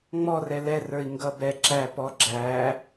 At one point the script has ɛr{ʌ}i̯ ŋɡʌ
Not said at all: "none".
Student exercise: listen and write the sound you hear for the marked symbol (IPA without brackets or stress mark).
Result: ə˞